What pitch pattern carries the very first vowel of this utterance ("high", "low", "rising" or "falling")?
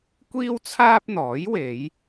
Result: high